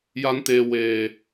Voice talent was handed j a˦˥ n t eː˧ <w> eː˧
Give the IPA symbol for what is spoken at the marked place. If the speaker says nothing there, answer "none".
w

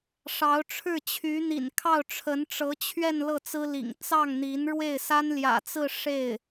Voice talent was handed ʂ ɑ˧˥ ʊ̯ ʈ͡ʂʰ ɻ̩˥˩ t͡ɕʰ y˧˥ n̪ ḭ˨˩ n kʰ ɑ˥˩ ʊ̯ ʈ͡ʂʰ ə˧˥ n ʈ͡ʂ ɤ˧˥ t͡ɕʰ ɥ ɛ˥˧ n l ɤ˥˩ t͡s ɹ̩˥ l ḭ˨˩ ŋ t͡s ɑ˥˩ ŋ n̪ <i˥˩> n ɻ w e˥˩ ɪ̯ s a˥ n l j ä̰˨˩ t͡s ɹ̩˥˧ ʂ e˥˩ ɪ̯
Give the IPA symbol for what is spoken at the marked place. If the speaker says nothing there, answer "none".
i˧˥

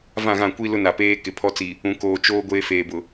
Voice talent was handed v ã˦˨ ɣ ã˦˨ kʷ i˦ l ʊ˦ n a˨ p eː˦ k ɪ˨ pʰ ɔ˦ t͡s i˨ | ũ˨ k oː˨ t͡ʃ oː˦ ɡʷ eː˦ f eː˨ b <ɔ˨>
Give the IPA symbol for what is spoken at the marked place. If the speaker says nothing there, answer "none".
ʊ˨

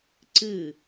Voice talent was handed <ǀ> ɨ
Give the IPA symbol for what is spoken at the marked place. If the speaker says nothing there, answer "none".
ǀ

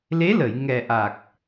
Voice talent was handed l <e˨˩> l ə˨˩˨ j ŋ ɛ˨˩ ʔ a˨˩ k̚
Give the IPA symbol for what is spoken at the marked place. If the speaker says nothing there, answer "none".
e˧˥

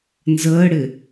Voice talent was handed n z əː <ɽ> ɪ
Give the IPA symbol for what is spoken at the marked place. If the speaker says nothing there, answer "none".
ɽ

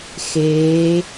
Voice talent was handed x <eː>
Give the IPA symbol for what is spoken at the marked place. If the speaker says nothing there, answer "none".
eː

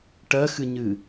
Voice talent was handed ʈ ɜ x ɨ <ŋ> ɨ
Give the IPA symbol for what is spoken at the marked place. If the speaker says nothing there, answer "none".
ɲ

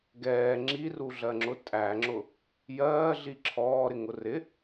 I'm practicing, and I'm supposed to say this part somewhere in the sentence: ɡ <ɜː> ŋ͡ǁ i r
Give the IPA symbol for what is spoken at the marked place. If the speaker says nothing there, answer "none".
ɛː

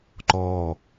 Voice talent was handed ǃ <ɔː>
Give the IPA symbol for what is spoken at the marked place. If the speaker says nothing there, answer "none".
ɔː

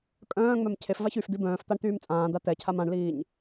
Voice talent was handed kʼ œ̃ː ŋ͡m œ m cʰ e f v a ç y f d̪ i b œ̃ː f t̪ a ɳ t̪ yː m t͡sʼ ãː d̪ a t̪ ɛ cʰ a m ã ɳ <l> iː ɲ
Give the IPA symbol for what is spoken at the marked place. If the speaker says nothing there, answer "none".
l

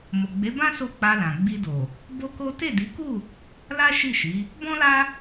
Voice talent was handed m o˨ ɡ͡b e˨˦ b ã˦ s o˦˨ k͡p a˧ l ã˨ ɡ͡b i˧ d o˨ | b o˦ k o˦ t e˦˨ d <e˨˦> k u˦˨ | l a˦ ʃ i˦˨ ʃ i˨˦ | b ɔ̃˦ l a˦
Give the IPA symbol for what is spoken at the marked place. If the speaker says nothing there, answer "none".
i˨˦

